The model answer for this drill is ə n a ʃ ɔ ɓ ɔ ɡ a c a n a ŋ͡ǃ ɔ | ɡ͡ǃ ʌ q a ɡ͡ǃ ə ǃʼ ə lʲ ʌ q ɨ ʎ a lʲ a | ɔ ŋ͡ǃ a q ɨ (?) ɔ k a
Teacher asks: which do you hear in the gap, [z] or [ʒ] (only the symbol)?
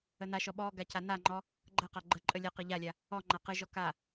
ʒ